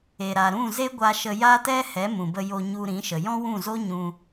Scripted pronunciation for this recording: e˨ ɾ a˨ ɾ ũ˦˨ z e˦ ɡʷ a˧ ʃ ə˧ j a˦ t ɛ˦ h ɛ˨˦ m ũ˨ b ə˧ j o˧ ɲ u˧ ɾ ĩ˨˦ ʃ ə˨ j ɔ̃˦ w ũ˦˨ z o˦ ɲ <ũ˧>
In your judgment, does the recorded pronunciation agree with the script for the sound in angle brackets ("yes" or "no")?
yes